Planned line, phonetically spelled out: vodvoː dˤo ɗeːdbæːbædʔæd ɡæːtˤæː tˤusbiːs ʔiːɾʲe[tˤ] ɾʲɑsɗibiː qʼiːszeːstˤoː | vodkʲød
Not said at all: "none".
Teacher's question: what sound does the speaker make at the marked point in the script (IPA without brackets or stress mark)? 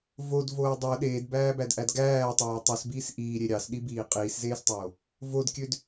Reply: none